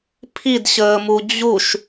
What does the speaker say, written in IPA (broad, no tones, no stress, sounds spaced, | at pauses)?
pʰ i d ɕ əː m u d͡ʑ u ʃ